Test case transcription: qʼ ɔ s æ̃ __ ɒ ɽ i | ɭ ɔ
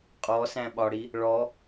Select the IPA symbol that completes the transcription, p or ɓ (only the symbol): ɓ